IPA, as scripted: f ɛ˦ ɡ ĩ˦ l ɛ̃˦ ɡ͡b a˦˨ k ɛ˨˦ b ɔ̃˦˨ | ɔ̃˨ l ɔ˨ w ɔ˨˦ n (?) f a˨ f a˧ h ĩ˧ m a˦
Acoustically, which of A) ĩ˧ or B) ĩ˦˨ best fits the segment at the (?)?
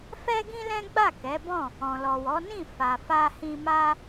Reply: B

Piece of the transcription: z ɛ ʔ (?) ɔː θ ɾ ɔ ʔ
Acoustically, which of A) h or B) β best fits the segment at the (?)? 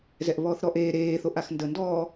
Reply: B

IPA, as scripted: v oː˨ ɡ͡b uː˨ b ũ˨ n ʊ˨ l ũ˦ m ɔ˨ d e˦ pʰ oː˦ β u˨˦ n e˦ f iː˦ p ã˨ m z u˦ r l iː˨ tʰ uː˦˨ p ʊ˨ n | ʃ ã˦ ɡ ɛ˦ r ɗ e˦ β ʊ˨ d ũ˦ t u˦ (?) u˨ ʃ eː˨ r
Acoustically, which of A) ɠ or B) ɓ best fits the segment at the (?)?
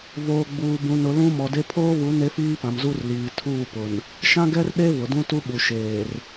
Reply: B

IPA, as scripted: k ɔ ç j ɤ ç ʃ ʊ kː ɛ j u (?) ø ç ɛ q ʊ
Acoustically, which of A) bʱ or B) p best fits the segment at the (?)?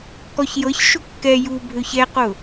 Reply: A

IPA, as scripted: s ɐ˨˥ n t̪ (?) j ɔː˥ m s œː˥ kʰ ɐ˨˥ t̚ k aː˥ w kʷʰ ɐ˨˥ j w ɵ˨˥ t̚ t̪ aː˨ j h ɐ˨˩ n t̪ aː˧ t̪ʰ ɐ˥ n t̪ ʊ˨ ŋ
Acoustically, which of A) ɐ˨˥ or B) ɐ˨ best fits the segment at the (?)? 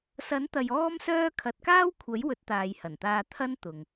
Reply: B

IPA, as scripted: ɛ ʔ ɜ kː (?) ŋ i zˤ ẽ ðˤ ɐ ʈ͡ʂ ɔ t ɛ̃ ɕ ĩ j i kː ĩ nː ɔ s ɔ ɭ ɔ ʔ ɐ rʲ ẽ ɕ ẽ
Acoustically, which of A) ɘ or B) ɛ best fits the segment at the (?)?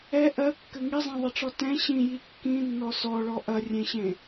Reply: A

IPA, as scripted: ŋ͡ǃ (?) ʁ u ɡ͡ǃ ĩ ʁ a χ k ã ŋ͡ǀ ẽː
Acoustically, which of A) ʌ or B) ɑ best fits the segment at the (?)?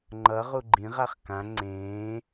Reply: A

